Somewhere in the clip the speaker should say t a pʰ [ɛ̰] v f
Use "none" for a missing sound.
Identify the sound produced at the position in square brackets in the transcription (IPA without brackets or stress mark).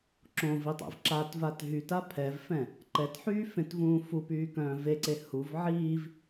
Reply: ɛ